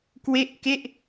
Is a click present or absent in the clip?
absent